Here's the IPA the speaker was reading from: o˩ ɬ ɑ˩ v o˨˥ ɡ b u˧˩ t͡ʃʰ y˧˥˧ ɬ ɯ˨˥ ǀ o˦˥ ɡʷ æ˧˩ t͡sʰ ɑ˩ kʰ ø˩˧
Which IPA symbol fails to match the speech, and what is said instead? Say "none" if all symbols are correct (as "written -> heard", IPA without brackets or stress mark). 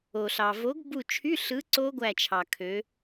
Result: t͡sʰ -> t͡ʃʰ